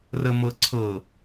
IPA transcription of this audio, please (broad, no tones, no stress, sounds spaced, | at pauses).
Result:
r ə m ɤ ǀʰ ɤ